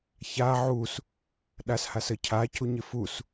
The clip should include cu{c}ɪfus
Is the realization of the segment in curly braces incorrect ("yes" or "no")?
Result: yes